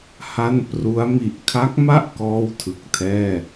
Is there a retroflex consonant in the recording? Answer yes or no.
no